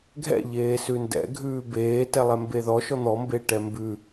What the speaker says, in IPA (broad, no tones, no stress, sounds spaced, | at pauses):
ɡʱ ɛ̰ ʎ eː s ʉ n d ɛ̰ ɡʱ ʉː b eː t ɛ lˠ ɛ m b e ð ɔ ʃ ɔ n̪ ɔ m b e ʈ ɛ m b ʉ